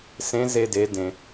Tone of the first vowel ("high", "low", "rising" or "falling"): rising